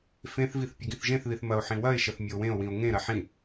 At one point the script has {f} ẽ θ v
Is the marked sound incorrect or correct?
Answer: correct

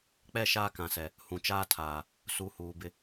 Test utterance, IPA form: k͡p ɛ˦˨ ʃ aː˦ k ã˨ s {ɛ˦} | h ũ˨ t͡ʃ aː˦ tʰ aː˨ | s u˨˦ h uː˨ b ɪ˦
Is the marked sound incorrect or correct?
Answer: incorrect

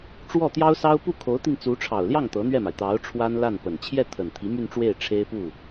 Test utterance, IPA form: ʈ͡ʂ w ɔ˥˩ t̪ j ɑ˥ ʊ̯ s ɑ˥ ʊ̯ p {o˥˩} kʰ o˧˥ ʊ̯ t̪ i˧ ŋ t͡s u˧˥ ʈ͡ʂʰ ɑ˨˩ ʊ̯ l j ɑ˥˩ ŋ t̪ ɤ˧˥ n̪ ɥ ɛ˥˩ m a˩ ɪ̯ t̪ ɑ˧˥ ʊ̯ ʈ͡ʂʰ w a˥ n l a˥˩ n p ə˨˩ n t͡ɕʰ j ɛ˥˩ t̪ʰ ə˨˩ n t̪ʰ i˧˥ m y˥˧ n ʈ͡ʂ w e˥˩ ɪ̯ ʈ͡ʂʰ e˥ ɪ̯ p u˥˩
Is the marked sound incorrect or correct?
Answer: incorrect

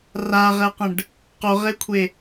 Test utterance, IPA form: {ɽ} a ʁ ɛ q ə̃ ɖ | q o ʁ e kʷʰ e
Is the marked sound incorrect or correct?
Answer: incorrect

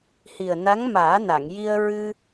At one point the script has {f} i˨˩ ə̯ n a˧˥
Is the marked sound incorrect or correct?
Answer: incorrect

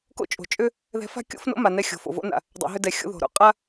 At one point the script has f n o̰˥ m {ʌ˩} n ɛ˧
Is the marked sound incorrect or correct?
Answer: incorrect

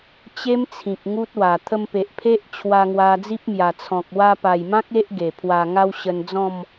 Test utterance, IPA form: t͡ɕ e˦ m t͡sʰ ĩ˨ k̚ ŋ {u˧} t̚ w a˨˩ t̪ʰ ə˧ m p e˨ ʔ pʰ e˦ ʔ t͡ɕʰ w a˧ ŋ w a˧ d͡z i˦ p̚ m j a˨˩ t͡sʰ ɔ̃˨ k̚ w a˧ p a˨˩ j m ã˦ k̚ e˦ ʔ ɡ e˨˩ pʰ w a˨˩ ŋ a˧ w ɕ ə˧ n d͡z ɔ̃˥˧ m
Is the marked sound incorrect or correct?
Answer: incorrect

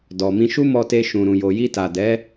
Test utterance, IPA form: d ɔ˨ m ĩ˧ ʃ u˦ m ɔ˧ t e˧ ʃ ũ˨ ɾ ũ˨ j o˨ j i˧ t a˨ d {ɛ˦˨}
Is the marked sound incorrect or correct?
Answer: incorrect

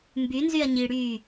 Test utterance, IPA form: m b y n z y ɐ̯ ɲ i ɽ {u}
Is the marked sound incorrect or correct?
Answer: incorrect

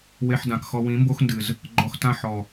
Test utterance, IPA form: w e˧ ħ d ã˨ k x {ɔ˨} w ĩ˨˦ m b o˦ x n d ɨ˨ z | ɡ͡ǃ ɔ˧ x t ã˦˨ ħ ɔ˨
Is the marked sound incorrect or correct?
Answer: incorrect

